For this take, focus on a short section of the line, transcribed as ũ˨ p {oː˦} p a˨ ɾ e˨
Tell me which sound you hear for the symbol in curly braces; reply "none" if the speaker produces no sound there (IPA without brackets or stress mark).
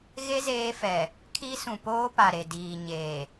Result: oː˦